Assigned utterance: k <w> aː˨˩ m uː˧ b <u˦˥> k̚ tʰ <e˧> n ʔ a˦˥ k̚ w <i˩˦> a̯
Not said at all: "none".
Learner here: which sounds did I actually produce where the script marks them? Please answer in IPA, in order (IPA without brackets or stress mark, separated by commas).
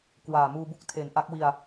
w, u˥˩, e˩˦, i˧